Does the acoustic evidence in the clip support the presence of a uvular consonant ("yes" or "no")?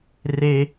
no